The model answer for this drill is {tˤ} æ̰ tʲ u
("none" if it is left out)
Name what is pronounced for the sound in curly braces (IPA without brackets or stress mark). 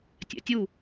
tʲ